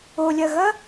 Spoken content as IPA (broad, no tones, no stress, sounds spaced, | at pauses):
o lʲ ɐ ɣ ɐ